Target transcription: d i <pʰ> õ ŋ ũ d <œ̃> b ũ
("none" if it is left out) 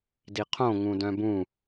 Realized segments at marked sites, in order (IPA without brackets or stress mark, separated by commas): qʰ, œ̃